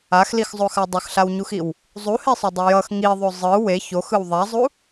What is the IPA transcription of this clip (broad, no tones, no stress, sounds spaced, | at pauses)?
a x l i x zˤ o x a dˤ ʌ x ɬ a w ɲ u x i w | zˤ u h e sˤ u dˤ ʌ j ʌ x ŋ i ðˤ o zˤ ɯ w e ç o x ɯ w ðˤ a zˤ u